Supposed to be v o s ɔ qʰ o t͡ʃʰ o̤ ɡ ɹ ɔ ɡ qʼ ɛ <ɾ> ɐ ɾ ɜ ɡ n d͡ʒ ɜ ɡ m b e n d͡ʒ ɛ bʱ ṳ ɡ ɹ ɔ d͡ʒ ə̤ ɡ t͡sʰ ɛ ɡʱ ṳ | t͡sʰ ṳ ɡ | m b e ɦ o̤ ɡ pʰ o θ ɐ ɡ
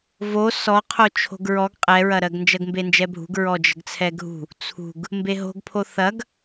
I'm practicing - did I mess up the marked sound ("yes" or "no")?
yes